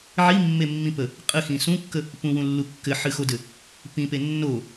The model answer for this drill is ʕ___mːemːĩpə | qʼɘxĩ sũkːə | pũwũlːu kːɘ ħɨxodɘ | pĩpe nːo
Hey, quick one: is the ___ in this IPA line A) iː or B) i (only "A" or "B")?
B